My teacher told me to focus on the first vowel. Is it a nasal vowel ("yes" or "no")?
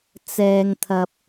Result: no